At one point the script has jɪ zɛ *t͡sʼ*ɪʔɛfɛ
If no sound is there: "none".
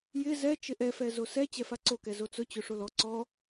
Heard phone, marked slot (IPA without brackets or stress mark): t͡ʃ